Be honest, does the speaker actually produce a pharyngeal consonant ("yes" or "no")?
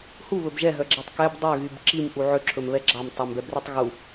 yes